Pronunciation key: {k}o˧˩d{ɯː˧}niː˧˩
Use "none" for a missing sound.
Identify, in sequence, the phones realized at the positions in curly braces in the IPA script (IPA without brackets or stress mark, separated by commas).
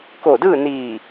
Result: k, ɯː˥˨